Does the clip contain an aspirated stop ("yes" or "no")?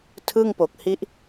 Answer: yes